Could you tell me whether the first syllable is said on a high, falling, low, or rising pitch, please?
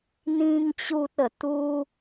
high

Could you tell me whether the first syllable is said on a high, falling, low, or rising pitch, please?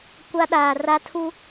high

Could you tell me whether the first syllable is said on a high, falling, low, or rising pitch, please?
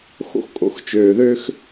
high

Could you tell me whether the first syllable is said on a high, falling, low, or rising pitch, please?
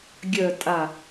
low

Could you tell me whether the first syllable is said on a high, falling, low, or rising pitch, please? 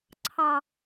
low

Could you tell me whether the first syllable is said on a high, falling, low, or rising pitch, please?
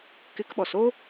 rising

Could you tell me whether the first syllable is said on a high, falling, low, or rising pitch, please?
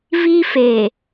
high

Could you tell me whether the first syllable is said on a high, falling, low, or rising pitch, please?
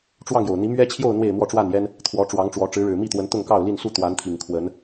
falling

